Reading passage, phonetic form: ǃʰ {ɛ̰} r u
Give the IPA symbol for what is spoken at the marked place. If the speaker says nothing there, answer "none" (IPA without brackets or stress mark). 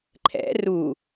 ɛ̰